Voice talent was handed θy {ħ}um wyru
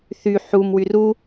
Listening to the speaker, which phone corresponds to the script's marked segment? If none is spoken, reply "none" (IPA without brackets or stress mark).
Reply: ħ